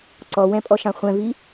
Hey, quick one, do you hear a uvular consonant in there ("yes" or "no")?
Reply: yes